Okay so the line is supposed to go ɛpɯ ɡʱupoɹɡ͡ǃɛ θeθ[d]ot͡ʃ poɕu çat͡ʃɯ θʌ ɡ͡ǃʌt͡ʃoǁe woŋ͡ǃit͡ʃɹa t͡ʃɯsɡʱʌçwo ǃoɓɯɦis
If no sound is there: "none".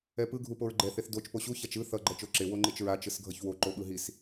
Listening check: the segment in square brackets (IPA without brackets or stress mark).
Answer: d